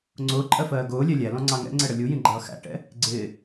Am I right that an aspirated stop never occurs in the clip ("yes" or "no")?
yes